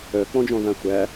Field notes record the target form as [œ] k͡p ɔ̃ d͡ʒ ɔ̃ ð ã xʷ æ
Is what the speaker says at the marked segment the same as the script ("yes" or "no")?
yes